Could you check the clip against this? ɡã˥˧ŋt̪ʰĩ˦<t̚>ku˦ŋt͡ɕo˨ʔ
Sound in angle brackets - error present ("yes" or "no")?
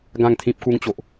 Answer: yes